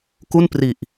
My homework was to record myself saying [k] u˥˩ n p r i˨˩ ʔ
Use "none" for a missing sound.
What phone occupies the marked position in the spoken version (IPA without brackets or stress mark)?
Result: k